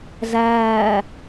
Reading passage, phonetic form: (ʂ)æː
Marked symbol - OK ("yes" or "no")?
no